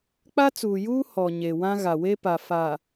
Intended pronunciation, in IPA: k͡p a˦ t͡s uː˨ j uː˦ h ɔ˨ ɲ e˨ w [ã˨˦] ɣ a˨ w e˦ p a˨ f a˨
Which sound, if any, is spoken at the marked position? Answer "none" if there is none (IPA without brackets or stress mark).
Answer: ã˦